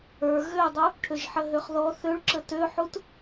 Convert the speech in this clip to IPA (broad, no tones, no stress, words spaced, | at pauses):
ə˞ ɣødˤu | ʈʰøʒħəɦøχðɔ θøɭǁə tøħut